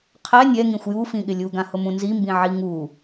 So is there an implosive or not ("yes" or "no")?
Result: yes